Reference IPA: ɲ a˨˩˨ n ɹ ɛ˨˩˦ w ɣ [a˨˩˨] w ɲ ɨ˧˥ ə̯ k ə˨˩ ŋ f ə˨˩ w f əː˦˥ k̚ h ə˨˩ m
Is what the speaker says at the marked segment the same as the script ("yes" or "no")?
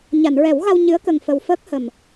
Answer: no